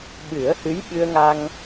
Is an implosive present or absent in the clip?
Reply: present